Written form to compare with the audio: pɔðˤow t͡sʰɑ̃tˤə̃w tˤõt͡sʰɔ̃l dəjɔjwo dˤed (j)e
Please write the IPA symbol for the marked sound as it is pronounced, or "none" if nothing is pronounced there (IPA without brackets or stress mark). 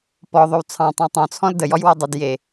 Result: j